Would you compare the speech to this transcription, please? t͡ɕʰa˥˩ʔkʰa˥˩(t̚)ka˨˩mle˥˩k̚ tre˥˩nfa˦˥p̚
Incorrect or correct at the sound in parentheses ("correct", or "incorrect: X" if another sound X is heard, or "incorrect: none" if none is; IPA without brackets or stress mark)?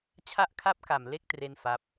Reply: incorrect: p̚